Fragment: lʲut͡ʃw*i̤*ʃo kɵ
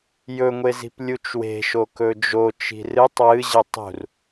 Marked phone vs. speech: incorrect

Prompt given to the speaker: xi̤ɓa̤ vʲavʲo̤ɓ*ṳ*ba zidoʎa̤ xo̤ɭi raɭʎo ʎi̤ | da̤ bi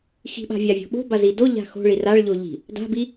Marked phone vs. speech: incorrect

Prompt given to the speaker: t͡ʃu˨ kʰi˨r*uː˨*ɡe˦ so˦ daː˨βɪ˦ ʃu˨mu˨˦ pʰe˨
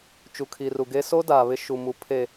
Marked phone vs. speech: incorrect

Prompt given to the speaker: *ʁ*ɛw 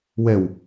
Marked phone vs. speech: incorrect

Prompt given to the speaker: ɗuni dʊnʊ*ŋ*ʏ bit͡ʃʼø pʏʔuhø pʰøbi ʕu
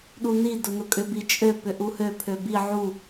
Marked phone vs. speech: incorrect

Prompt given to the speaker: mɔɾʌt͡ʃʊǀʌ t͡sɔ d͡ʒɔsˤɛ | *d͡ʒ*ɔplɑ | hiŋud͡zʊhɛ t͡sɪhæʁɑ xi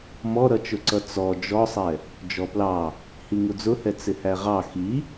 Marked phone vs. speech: correct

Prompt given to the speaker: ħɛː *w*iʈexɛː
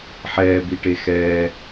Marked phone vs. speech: incorrect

